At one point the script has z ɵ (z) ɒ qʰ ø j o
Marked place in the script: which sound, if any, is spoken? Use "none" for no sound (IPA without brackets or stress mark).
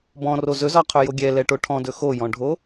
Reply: z